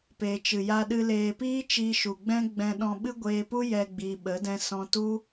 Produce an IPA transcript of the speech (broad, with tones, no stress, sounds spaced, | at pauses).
p eː˨ t͡ʃ ɨ˨ j a˧ ɗ ɨ˧ l eː˨ p iː˦ t͡ʃ iː˧ ʃ u˨ ɡ͡b ɛ̃˦ ɡ͡b ɛ̃˧ ɗ ɔ̃˧ ɓ ɨ˦ ɡʷ eː˧ p u˦ j ɛ˧ ɡ͡b iː˨ ɓ ə˨˦ d ɛ̃˧ s ɔ̃˧ t u˦